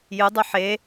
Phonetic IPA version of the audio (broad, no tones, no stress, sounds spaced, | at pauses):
j ɨ dˤ u ħ e